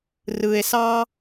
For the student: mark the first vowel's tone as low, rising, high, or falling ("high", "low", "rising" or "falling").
low